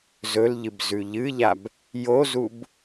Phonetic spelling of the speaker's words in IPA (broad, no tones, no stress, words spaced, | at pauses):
zɵlʎɨb zʉʎɨʎab | jozub